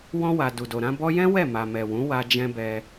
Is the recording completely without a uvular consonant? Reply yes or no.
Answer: yes